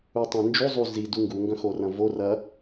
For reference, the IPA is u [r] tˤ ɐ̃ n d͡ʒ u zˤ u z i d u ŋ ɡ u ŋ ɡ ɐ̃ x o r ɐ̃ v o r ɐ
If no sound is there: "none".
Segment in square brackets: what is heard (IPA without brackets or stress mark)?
none